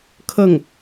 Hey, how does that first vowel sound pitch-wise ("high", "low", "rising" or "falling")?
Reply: falling